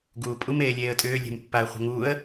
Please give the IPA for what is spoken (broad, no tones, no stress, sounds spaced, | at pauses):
ɡ uː pʼ u m eː lʲ eː ə̯ tʼ ʏː lʲ e̤ m pː a ə̯ χʷ ə̤ ŋ uː ə̯